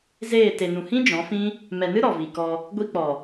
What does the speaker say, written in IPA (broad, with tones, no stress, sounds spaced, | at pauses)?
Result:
z eː˦˨ t e˨ n ũ˨ h ĩ˦ d͡ʒ ɔ̃˨˦ f ĩ˦ | m ɛ˨ n ɨ˦ ɾ ɔ˨ v i˨ k ɔ˧ | ɡʷ i˦ k͡p ɔ˨